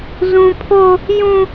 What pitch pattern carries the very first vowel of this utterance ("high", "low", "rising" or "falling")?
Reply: high